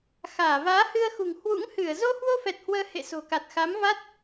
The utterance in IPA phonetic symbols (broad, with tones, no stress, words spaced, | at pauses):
xaː˧˩ vaː˨˦hɨ˧ə̯xṳ˨˩ŋ hwṵ˧˥ŋhɨ˧˩ə̯ zo˧hwo˧fɛ˨˩t̚ hwəː˧hḛ˧˨ so̤˨˩ka˨˩t̚ xa˨˦mva˦˥t̚